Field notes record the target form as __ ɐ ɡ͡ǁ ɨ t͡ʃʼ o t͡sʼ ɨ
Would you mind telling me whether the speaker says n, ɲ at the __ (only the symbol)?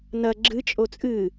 n